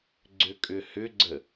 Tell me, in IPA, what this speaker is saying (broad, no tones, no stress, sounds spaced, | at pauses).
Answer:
ɡ͡ǀ ʏ kʼ ʏ h ʏ ɡ͡ǀ ə